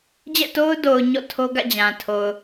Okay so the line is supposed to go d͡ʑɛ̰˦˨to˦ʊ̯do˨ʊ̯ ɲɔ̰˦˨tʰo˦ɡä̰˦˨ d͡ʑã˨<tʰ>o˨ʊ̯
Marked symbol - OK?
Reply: yes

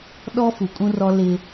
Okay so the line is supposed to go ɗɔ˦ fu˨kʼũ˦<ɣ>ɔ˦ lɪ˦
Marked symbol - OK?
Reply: no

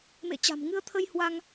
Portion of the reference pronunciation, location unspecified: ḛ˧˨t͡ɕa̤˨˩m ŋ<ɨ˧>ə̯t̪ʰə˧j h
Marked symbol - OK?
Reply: yes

